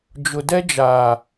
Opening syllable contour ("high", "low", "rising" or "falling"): low